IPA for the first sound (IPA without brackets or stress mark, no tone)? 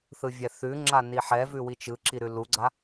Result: θ